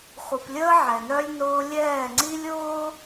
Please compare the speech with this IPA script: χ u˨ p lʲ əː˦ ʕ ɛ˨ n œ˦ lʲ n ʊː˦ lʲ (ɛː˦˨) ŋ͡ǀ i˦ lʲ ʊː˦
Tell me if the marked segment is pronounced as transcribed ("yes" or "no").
yes